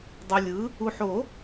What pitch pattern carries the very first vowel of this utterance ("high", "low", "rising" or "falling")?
low